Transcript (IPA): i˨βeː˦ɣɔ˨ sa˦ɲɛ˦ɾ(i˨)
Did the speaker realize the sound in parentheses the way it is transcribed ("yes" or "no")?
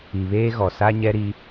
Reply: no